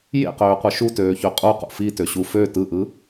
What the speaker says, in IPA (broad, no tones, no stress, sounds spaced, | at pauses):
j ḛ q øː qʷ ɯ ʃ u t øː ç ø qʼ u q ṵ f i t ø ɕ u f ø t ɯ ʔ ɯ